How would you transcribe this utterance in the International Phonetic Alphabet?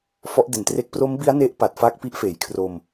fɔ˦˥ʔde˨˩ntre˦˥k̚ pro˦˥mbi˦˥a̯ ne˦˥ʔpa˨˩t̚fa˦˥k̚ pi˦˥ʔfeː˩˦jkʰro˧m

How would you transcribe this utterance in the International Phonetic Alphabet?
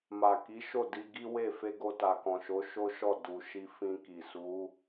ma˨ ki˨˦ʃo˦˨ di˧ɡi˦we˦˨ fe˧ɡo˧ta˨kɔ̃˨ ʃo˨˦ʃo˦ʃɔ˦˨ du˨ ʃi˧fĩ˧ki˨ su˨˦

